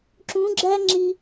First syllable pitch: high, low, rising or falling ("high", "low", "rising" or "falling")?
rising